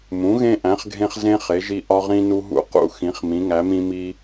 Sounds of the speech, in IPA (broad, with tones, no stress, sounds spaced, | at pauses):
m ũ˩˥ ɣ ẽ˦ ʔ æ̃˩˥ χ ɡʱ ẽ˦ χ z ẽ˦ χ e˩˥ ʒ i˦ ʔ ɒ˦ ʁ ĩ˦ n u˦ ɦ ṵ˦ q ṵ˦ x ĩ˩˥ χ m ĩ˩˥ ŋ æ˩˥ m ĩ˦ m i˦